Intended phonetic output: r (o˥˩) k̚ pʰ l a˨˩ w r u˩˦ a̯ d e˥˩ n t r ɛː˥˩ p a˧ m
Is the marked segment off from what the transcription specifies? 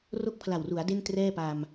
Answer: no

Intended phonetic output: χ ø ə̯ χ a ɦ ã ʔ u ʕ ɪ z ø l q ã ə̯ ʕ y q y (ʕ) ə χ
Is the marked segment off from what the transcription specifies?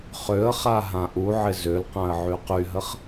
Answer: yes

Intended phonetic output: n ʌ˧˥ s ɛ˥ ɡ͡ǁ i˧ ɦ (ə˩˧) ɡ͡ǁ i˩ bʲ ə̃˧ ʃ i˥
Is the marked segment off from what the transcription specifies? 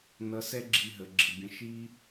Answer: no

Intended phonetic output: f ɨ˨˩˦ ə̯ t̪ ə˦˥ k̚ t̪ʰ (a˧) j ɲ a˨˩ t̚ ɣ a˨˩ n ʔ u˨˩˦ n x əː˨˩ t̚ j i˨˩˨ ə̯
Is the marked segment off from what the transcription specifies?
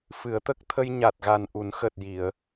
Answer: yes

